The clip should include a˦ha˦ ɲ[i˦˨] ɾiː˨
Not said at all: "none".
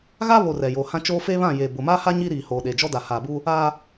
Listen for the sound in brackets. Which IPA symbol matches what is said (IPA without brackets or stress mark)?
i˦